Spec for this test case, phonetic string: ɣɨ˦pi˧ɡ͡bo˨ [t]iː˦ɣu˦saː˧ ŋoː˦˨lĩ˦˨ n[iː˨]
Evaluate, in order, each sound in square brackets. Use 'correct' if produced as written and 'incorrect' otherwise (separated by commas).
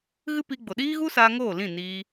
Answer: incorrect, incorrect